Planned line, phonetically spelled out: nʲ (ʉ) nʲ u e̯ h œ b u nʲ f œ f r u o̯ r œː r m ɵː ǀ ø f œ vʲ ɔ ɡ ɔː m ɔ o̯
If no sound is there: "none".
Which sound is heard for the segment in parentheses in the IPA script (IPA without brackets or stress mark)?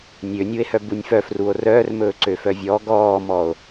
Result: ø